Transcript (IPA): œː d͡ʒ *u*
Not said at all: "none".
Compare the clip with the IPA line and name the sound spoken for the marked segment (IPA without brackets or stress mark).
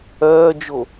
o